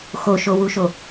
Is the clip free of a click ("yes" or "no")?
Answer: yes